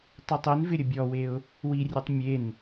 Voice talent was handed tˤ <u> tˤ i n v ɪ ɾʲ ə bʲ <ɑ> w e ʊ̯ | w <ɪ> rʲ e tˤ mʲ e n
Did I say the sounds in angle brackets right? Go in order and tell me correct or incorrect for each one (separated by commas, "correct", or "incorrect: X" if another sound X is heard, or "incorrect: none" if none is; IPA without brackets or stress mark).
correct, incorrect: ɔ, incorrect: i